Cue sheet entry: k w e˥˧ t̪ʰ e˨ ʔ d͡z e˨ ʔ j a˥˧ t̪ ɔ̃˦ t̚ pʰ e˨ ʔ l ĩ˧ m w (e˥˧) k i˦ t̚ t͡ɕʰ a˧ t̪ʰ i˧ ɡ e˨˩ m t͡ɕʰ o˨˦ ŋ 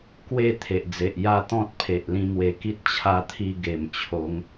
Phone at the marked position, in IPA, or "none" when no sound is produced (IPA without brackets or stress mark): e˨˩